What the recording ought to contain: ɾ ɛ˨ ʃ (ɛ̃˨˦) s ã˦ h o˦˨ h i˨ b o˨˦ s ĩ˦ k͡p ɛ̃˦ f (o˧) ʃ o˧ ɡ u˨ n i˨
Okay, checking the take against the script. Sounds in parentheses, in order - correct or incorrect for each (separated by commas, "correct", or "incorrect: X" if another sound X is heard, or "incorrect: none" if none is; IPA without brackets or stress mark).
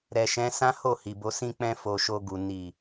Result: correct, correct